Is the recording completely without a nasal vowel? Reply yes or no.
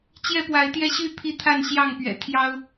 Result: yes